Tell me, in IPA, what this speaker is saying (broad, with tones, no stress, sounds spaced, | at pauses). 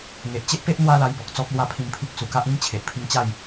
ŋ e˨ ʔ t͡ɕ e˦ ʔ p e˦ ʔ n̪ w a˦ l a˧ j b ɔ˨ k̚ t͡s ɔ˦ k̚ l w a˥˧ pʰ ĩ˧ m pʰ i˦ k̚ s u˨˩ k a˦ ʔ ĩ˦ m t͡ɕʰ e˨ ʔ pʰ i˧ ŋ t͡ɕ a˥˧ j